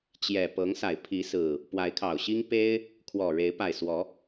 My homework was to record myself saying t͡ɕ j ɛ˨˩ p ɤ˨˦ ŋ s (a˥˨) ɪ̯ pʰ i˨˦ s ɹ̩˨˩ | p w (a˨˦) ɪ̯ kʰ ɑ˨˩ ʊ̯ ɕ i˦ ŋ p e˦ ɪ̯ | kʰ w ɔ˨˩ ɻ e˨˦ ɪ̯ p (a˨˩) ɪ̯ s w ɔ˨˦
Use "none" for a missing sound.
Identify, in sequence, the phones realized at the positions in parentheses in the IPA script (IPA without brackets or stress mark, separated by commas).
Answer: a˨˩, a˨˦, a˨˩